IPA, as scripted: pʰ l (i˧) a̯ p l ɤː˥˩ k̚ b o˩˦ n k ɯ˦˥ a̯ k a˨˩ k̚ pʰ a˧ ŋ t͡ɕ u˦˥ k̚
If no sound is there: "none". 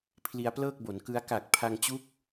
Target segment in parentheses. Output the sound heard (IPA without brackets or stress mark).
i˧